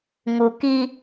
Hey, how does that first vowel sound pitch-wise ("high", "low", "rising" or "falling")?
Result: low